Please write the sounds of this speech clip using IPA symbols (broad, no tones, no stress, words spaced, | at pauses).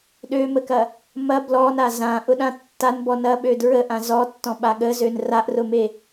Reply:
ɗøməkɐ | mɐ blɔna zãʔʊɗã tːanbɔ nɐɓø dɹəʔã zɔtːɔ̃ɓa ɠəzøn raʔrʊme